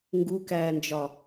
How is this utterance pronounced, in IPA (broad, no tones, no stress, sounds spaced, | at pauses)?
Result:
ŋ ɡ u k æː n d͡ʒ ɒ